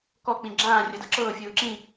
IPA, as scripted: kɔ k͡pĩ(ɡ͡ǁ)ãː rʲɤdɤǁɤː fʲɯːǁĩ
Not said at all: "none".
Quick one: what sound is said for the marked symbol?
ɡ͡ǁ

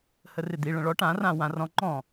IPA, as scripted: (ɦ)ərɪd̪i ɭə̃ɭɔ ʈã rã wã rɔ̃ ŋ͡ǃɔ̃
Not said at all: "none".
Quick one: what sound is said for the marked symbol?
h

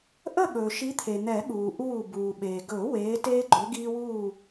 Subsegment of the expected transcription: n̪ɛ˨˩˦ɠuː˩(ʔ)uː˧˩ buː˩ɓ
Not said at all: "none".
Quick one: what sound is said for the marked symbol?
ʔ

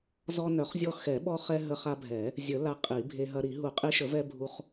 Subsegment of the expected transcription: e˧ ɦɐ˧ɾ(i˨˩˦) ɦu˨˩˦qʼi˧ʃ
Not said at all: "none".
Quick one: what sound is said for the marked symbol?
i˨˩˦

